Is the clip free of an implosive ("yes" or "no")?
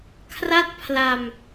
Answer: yes